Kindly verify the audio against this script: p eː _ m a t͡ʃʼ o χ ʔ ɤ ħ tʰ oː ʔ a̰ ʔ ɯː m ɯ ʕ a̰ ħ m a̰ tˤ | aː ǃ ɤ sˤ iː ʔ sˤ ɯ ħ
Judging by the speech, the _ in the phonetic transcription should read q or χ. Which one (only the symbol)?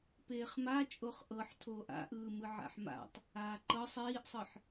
χ